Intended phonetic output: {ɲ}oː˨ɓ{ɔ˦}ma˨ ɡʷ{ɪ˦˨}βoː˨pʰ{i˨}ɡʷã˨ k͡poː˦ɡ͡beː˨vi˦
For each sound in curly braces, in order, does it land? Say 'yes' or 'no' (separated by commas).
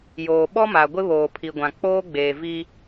no, yes, no, yes